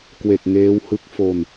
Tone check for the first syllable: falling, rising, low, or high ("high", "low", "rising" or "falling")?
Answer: low